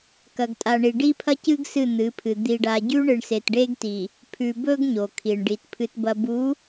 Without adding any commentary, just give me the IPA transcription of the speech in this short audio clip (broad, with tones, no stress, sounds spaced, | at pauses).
k ɐ˨ ɡ tʼ a˨ ɳ i˨ ɖ i˦ pʰ ɐ˦ c ɨ˦ ɡ s ɨ˦˨ n̪ ɨ˨˦ pʰ ɨ˨ d̪ i˨ ɖ a˨ ɟ ʉ˦ ɳ ɨ˨ ɳ s e˨ t ɖ e˦ ɡ t i˨ | pʰ ʉ˨ b ɵ˦ ɡ ɲ o˨ kʰ i˨ ɳ ɖ i˨ t pʰ ɨ˨ t b ɐ˨ b u˨˦